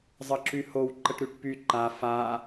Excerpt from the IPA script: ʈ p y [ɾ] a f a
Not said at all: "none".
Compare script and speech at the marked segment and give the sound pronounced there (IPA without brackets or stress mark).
ǃ